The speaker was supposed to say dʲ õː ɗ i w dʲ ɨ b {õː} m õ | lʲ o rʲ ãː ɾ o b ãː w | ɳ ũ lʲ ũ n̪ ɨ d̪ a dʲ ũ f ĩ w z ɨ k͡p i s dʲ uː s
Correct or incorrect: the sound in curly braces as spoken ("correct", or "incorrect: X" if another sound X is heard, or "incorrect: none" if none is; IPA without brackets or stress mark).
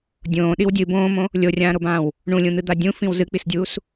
correct